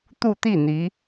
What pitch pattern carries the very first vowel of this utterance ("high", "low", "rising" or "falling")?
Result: falling